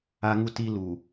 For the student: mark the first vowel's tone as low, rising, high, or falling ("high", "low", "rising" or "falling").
high